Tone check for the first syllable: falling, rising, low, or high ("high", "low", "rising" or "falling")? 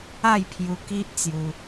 falling